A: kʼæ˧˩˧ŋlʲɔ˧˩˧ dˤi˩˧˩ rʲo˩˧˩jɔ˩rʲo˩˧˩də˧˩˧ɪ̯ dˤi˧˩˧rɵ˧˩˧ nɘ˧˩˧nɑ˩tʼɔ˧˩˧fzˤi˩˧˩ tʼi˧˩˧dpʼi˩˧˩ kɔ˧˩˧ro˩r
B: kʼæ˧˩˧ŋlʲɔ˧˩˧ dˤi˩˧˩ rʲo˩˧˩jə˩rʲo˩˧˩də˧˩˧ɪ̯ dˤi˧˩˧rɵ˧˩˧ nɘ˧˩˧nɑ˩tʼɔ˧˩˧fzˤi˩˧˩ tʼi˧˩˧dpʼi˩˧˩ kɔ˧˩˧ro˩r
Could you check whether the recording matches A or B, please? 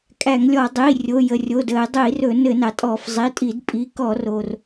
B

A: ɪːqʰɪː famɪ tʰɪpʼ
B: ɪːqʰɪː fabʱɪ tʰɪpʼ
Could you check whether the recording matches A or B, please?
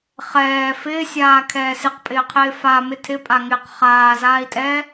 A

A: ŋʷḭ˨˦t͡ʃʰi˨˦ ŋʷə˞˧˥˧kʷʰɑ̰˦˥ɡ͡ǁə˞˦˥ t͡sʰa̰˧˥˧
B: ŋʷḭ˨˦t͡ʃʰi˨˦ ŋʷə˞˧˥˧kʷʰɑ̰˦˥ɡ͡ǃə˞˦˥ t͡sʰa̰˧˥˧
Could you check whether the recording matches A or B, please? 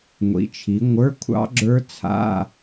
A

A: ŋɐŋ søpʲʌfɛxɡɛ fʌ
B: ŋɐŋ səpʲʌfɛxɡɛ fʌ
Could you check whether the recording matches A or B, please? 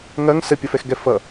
B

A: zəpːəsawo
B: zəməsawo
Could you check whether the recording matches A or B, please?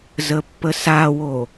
A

